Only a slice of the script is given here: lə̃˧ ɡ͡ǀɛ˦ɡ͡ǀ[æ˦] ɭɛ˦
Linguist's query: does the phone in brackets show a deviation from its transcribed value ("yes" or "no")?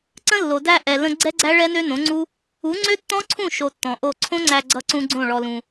no